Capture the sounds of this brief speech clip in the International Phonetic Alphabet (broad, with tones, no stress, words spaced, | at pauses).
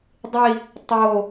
dˤi˥˧ | tˤo˥˧